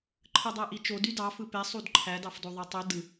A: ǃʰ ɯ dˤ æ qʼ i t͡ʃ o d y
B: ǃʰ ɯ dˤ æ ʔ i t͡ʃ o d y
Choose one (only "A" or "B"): B